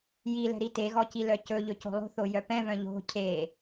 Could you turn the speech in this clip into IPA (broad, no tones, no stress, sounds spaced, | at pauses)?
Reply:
j i l ɛ̤ ɾ i t e ɣ ɔ c i l œ c ɵ ʎ ɵ c o̤ lˠ o̤ θ o j œ p ɛ̃ v œ̃ ʎ o̤ cʰ e